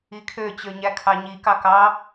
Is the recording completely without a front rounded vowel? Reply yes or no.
no